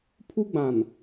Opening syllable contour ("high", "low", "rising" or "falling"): high